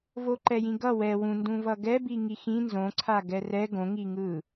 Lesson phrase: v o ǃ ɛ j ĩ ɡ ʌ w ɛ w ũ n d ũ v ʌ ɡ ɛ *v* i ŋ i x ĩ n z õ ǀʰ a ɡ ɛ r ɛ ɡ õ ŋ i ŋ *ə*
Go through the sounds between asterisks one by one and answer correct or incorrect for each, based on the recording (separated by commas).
incorrect, incorrect